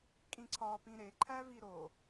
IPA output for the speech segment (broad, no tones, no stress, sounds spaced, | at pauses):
kʼ ĩ ǀʰ ɒ p ĩ ɾ e ǃʰ æ v i ɾ o